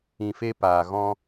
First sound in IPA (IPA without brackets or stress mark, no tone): ĩ